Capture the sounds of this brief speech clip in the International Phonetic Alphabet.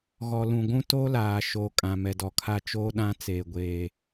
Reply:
ɣ ɔ˨ l ũ˨ ɡʷ ũ˦ t o˦ l aː˨ ʃ o˨ kʼ ã˨ m ɛ˨ d ɔ˨ kʰ a˦˨ t͡ʃ oː˦ ɗ ã˦ t͡s eː˨ ɡʷ eː˨

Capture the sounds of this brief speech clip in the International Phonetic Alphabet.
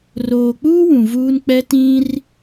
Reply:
r oː˨ k͡p uː˦ w ũ˨ v uː˦ n k͡p ɛ˦ t ĩ˦ r

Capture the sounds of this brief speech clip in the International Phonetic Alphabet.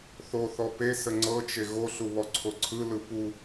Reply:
θ o θ ɔ p e s ə ŋ͡ǀ ɤ t͡ʃ e ɣ o ɬ u β ɔ ǀʰ o ǀʰ ɯ l ɯ p u

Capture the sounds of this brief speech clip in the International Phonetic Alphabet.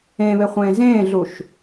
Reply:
ẽ β e χʷ ẽː z ẽː ɮ u ʃ

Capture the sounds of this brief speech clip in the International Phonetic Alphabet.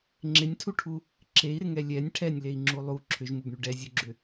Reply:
ŋ͡ǁ ɪ nʲ tʰ u ʈʰ u | ǁ e i̯ ɾ ɪ ŋ ɛ lʲ ɛ nʲ ʈʰ ɛ nʲ l e i̯ ŋ͡ǁ u lˠ u ǁʰ ʏ ʒ m u ɡ ɳ y ɖ ɛ zʲ u ɡ͡ǁ ʏ

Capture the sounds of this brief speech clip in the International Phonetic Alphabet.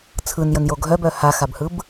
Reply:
t͡sʰ ɯ n j ə n j o ɡʱ œ b œ h a x a b h ɯ b

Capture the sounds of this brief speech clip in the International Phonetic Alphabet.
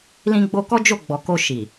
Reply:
l ĩ˧ ɡ͡b o˧ k ɔ˦ d͡ʒ o˦˨ ɡ͡b ɔ˨ k o˧ ʃ i˨

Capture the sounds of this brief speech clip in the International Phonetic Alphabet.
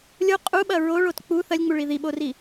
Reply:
lʲ o qʼ u ɓ ɐ ɹ o ɭ o t k͡p u θ ɐ lʲ ŋ͡m u ɭ i ð i ɓ o r i

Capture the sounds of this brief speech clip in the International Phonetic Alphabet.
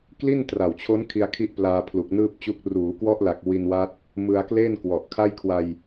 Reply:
k l i˥˩ n t r a˨˩ w t͡ɕʰ o˦˥ n kʰ i˧ a̯ kʰ i˦˥ ʔ p l aː˧ pʰ l u˨˩ k̚ n ɯː˥˩ p̚ t͡ɕ u˦˥ k̚ r uː˩˦ k w ɔ˦˥ ʔ l a˨˩ k̚ w i˧ n w a˦˥ t̚ | m ɯ˧ a̯ k l e˥˩ n k w ɔ˨˩ ʔ kʰ a˥˩ j kʰ w a˧ j

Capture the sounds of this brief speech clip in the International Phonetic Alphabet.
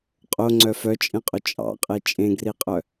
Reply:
qʼ o ŋ͡ǀ œ f œ t͡ʃʼ ẽ qʼ ɵ t͡ʃʼ ɑ̰ qʼ e t͡ʃʼ ẽ ɡ r i qʼ œ

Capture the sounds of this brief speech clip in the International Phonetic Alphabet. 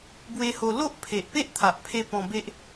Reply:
b w e˧ h o˧ l o˦ ʔ pʰ e˨ ʔ p e˦ ʔ t̪ʰ a˨ ʔ pʰ e˧ p ɔ̃˧ b e˦ ʔ

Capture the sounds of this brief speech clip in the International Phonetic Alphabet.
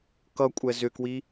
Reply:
k ʌ kʷʼ ɛ z ʏ k w i

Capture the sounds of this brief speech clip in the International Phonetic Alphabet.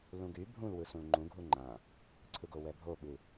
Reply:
l ũ ɡ y bʱ ũ l w ɯ s ũ l ŋ͡ǃ ũ ɡʱ u ŋ͡ǃ ã | ǀʰ ɯ ɡ o w ɛ bʱ o ɓ ɯ

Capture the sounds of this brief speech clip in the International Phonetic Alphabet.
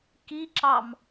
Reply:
k i ǁ ɑ m

